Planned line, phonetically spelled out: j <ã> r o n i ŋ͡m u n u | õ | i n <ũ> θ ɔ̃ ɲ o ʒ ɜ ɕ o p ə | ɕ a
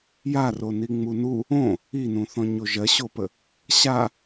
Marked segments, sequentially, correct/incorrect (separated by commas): incorrect, correct